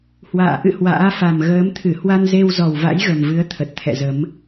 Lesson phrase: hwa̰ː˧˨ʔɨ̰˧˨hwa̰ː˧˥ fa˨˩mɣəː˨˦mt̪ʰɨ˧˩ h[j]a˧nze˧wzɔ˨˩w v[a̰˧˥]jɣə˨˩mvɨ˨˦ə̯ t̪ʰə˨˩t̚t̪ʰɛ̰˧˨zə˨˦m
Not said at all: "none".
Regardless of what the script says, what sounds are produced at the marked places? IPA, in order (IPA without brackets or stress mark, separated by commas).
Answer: w, a̰˧˥